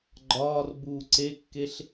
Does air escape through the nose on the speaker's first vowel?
no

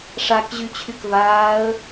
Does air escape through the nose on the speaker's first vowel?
no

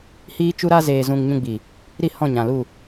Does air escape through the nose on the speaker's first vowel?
no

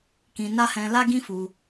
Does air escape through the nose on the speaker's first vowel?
yes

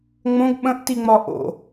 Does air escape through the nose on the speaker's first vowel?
yes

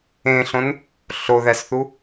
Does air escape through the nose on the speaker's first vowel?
yes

